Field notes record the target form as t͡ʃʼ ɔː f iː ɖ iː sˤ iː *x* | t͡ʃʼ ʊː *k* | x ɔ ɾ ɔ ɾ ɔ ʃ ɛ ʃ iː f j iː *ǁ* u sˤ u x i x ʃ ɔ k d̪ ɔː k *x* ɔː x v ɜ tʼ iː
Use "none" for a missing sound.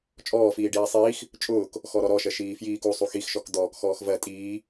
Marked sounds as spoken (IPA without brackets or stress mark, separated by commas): x, k, k, x